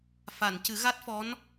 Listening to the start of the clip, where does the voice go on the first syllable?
low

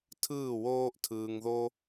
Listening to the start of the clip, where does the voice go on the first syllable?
falling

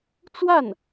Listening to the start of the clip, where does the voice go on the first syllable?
falling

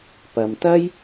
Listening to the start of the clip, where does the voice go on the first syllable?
low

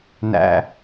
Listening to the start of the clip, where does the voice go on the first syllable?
low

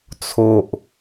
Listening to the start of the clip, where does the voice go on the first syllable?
low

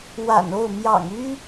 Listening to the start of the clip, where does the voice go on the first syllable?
low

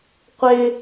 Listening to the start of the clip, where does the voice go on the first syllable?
high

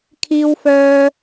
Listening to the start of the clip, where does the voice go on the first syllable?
high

